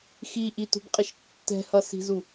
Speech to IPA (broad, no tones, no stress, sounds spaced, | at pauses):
x i ʔ i t ṳ b qʼ ɪ ʃ tː ɛ̤ h ʌ s i̤ z u